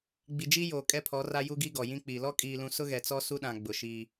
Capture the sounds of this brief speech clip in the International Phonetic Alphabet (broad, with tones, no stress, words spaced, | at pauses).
ɡ͡bi˨d͡ʒi˦joː˨ kʼɛ˦pʰɔ˨˦ ra˦ ju˦ɡi˦ɡɔ˨ jĩ˦k͡piː˨ lɔ˦kʼiː˨lũ˨ sʊ˦ɣɛ˨t͡sɔ˦ su˦ɗã˨ɡ͡bʊ˨ ʃiː˦